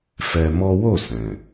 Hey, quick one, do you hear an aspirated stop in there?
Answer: no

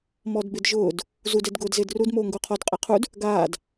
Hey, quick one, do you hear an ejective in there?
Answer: yes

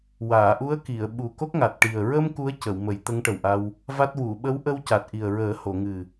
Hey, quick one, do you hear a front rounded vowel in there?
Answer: no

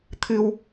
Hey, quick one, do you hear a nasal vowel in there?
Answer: no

